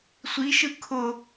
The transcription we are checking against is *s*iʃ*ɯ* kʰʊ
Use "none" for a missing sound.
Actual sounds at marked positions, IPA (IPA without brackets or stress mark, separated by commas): sʷ, ɯ